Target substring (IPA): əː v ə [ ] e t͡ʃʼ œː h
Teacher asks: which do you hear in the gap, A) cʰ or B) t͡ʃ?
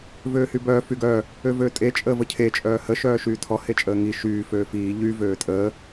A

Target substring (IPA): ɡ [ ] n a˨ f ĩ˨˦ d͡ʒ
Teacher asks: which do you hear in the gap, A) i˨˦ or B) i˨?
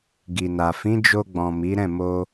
B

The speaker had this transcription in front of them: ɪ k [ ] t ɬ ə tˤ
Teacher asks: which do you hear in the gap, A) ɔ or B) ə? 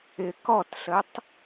A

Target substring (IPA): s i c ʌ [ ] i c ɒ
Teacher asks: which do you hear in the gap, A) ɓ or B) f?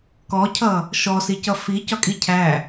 B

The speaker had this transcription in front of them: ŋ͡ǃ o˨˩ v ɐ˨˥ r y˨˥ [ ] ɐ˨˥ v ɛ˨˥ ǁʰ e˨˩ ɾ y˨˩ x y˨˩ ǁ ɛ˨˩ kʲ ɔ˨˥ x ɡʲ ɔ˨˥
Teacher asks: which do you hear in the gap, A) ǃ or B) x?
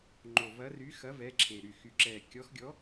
B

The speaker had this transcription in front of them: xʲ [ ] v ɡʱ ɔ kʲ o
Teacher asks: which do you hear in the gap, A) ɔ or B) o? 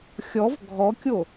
A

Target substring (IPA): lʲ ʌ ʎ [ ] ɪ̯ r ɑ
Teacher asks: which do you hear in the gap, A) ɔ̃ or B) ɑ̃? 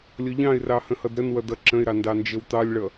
B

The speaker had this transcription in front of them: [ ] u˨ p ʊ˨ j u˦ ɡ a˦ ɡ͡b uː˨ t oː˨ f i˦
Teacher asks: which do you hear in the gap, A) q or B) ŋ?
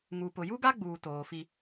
B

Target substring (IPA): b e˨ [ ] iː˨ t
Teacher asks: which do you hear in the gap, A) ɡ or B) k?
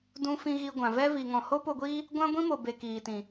B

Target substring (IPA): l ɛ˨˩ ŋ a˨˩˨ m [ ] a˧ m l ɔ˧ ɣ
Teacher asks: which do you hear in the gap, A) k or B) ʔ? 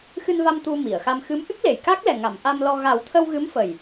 B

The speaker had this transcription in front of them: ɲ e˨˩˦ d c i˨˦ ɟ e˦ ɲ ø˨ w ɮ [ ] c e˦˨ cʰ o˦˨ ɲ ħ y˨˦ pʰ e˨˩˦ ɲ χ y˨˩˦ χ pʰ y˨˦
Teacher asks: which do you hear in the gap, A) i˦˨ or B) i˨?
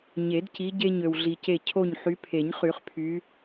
B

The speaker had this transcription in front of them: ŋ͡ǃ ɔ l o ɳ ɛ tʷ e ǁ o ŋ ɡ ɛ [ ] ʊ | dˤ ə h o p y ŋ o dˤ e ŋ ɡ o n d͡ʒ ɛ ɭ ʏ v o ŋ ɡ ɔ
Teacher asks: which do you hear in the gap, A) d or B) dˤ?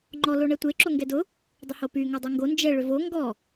A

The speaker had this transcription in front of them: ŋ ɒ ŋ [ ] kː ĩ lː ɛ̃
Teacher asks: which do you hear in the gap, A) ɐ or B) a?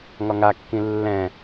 B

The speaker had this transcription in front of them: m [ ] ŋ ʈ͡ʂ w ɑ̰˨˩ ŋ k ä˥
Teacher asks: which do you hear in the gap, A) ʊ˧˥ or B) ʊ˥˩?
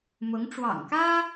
A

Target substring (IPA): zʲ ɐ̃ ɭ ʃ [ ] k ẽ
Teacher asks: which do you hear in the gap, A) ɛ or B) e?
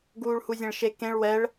B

